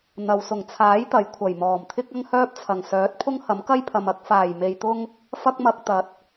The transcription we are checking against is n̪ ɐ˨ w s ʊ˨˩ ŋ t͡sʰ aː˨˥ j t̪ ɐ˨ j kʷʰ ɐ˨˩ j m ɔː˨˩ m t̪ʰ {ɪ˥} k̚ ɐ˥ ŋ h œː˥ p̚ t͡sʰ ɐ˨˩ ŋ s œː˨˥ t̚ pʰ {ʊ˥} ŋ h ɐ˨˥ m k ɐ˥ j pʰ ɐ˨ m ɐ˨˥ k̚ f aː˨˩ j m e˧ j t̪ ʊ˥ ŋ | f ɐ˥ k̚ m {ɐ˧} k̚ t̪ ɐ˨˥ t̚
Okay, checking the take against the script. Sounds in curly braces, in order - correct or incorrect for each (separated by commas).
correct, correct, correct